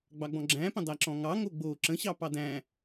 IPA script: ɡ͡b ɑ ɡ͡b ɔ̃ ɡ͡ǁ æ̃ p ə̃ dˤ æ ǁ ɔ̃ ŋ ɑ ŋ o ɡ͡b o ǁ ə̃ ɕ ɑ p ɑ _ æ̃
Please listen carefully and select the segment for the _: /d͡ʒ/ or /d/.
d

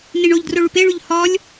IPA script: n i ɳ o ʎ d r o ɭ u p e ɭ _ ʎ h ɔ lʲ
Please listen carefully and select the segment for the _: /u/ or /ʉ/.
ʉ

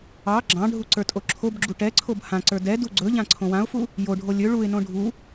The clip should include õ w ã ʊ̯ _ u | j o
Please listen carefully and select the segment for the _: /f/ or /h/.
f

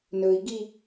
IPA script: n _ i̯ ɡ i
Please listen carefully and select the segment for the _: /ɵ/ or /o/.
ɵ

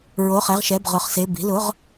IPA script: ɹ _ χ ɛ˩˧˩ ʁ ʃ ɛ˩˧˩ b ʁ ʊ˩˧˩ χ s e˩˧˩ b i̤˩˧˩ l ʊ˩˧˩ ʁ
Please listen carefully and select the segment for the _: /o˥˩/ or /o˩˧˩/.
o˩˧˩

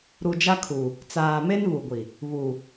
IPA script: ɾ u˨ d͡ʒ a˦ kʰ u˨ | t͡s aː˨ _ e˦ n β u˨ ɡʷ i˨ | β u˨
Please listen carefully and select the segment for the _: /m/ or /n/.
m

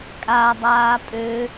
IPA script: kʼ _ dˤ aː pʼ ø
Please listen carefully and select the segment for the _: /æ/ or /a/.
a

